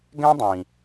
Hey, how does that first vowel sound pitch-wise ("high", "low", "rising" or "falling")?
high